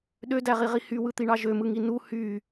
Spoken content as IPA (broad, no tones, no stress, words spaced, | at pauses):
ɗødæʁiʁi hywɯt̪iɳɑ ʒømɯŋi nu hy